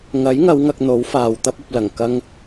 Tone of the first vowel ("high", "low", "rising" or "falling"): rising